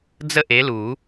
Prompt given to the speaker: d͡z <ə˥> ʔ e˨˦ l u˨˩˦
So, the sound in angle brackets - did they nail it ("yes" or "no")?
yes